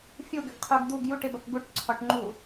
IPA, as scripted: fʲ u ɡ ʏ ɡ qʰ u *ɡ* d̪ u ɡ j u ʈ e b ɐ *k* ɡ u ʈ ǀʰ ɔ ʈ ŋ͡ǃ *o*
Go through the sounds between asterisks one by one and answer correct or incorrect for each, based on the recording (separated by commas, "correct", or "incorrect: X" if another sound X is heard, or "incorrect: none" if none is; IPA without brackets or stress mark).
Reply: correct, correct, incorrect: u